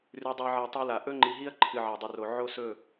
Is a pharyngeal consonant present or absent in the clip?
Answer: present